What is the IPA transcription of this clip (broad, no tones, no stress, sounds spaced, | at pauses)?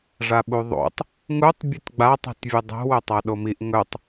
ʐ a ɓ u ðˤ o̰ tˤ | ŋ u tˤ bʲ ʉ t ɡ͡b a tˤ i̤ t vʲ ɨ dˤ o̤ w ɵ tˤ a ɗ o m i ʔ ŋ ɵ tˤ